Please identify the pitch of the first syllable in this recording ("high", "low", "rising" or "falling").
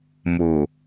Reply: low